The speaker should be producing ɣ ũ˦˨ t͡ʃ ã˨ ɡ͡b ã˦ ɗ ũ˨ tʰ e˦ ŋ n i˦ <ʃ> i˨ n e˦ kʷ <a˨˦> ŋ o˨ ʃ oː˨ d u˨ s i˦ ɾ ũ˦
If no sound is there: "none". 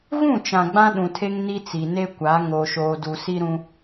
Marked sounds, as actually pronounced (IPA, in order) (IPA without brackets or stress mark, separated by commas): t͡s, a˨˦